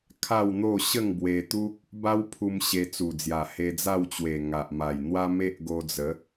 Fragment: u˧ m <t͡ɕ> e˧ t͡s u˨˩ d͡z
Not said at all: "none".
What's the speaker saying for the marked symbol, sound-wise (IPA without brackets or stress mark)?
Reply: ɕ